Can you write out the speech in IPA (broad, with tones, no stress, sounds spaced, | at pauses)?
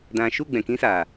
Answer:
d ã˨ ʃ u˦˨ ɡ͡b ɛ̃˨ k ĩ˦ s aː˨